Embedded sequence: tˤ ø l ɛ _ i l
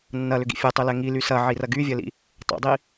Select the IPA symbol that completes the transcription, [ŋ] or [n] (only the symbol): ŋ